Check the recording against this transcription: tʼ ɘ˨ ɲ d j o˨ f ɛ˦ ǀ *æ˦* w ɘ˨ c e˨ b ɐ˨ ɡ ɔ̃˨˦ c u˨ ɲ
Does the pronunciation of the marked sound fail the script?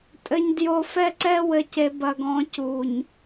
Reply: yes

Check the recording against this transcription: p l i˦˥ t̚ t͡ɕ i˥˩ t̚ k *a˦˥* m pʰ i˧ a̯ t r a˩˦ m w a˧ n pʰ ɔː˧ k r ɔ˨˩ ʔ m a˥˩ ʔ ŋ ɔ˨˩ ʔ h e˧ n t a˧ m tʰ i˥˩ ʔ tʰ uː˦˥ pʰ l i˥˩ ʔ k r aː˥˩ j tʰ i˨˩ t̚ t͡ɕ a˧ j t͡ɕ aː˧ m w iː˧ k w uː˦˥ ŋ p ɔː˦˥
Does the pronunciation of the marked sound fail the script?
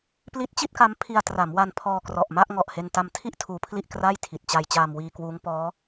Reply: no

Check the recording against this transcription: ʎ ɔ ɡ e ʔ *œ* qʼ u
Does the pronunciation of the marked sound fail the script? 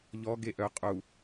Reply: no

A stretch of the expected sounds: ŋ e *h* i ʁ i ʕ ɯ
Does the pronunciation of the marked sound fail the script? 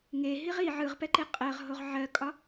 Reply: yes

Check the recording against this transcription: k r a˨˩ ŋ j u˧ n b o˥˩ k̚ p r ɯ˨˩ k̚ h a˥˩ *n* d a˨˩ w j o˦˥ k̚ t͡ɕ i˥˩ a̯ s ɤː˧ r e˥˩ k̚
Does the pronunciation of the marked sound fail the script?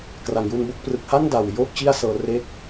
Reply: no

